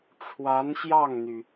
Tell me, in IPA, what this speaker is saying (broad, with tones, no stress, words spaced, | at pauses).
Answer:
ʈ͡ʂʰwa˧˥nɕjɑ˥˩ŋn̪y˩